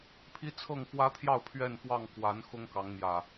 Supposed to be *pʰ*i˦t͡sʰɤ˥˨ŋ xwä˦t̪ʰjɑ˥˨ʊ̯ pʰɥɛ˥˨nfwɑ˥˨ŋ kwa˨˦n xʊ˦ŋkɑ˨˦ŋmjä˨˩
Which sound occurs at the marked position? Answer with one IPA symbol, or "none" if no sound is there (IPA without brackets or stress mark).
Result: pʰ